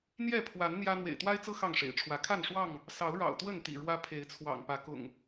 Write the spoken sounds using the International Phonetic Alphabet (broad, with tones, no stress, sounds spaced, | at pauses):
n̪ j ɛ˥˨ pʰ w a˨˦ n n̪ j ä˦ n̪ w ḛ˨˩ ɪ̯ t̪ w a˦ ɪ̯ t͡s ɤ˦ x ɑ˥˨ ŋ ʂ ḛ˨˩ ɪ̯ ʈ͡ʂʰ w ä˨˦ kʰ a˥˨ n ʂ w ɑ˥˨ ŋ | s ɑ˨˦ ʊ̯ ɻ ɑ̰˨˩ ʊ̯ t̪ w ə˥˨ n t̪ ḭ˨˩ ɻ w ä˦ pʰ e˨˦ ɪ̯ t͡sʰ w ɑ̰˨˩ ŋ p ä˨˦ k ʊ̰˨˩ ŋ